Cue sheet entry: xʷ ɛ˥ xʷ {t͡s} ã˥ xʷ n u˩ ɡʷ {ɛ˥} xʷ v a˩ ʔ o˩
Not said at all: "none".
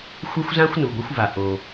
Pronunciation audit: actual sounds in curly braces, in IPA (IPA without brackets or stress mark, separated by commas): z, ɛ˥